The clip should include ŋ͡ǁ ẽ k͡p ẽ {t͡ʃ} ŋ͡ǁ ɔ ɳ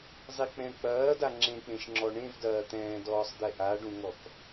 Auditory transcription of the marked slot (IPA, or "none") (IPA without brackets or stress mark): ʃ